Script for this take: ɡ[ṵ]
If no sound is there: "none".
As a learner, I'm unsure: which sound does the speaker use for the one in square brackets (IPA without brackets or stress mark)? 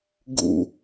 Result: ṵ